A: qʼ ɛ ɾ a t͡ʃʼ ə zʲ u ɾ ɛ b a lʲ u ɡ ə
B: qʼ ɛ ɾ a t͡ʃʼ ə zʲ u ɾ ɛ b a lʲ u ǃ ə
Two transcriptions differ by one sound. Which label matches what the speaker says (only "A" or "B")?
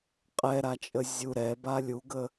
A